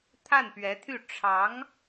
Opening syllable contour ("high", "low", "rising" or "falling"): falling